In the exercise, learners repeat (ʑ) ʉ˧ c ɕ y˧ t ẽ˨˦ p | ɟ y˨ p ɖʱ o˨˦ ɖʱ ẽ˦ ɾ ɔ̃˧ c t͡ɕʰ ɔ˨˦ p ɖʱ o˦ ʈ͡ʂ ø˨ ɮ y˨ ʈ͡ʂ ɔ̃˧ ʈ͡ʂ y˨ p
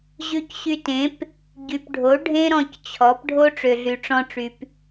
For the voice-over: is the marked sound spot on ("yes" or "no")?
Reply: yes